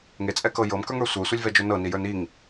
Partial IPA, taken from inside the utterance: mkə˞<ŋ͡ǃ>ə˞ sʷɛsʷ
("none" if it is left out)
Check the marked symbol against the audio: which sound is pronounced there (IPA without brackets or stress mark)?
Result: ŋ